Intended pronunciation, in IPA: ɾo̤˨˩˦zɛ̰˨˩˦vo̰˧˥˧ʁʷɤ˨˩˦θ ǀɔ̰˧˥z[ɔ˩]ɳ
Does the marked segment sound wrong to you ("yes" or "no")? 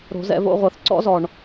no